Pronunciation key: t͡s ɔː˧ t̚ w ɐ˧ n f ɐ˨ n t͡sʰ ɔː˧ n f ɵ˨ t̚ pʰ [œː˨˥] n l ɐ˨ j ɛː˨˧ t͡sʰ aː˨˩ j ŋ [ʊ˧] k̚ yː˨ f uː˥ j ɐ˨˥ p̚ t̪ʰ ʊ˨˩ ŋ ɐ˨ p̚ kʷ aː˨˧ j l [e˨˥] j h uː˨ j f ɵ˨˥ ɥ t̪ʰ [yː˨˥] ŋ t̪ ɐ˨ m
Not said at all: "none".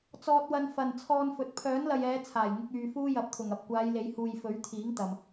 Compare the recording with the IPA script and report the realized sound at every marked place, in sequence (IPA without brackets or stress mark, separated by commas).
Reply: œː˨˥, ʊ˧, e˨˥, iː˨˥